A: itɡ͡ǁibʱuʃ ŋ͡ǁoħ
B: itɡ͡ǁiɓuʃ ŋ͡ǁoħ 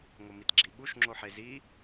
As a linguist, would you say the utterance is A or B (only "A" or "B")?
B